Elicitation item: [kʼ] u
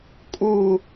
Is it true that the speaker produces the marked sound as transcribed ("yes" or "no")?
yes